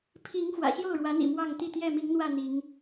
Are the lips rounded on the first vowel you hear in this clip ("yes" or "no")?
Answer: no